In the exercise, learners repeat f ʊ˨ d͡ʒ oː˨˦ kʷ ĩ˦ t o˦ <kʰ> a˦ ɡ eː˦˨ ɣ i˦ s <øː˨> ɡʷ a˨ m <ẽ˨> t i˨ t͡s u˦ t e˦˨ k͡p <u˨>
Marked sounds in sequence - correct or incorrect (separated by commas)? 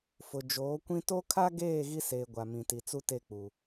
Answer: correct, incorrect, incorrect, correct